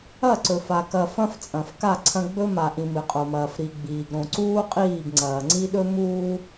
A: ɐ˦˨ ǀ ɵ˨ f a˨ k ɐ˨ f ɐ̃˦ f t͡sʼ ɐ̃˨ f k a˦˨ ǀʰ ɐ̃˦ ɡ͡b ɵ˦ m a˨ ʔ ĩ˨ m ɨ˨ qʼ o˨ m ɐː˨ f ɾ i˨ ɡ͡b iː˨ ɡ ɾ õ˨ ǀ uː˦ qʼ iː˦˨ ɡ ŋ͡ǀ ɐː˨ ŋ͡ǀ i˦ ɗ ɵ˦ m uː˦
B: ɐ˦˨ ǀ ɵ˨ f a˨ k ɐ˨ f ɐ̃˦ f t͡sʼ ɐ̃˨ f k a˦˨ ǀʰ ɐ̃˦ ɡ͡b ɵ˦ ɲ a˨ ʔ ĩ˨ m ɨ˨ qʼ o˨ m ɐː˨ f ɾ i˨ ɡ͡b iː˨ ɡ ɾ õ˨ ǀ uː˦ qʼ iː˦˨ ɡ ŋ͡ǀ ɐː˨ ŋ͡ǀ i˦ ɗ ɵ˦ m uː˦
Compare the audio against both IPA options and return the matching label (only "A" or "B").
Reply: A